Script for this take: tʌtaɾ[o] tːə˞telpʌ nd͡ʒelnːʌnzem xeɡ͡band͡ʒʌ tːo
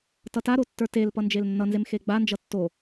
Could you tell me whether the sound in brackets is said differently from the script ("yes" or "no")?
no